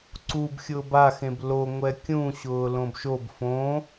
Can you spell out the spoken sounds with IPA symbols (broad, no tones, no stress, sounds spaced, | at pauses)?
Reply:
ǀ u b xʲ ʊː b a x ẽ b l o ŋʷ ɛ kʲ ũ ɕ ʊː l õ b ʃ o b f õː